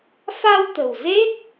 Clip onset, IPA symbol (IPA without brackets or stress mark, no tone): f